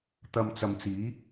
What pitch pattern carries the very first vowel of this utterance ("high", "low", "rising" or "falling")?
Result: low